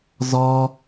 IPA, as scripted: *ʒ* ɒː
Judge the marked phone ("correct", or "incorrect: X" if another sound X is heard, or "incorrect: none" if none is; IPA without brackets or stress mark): incorrect: z